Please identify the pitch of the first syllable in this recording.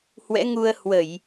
rising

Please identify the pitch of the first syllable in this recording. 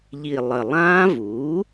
low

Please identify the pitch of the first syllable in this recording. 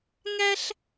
high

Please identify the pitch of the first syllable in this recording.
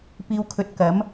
low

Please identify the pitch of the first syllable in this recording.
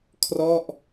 falling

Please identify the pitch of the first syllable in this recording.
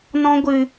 high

